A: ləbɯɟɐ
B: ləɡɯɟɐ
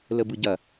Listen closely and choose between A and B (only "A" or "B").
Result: A